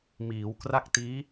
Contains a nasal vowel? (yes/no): no